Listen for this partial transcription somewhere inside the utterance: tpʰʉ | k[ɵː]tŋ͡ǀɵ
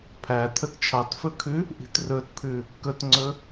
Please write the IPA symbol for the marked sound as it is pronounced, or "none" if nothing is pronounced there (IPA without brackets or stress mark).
ɵ